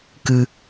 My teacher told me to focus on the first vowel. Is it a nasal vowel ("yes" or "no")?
no